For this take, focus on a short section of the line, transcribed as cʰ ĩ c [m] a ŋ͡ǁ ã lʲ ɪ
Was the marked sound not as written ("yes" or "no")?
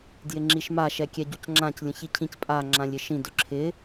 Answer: yes